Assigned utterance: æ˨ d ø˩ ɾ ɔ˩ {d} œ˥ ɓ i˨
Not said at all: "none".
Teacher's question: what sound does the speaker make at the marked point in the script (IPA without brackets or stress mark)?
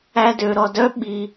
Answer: d